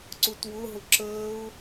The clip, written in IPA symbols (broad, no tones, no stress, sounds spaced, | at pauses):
ǀ u t w ʊ ɦ ʊ ǁ əː ʊ̯